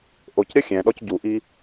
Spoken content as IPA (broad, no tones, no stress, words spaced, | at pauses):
ʔocɾʲɐ xʲɛ̃ɗɔc ɟuʔi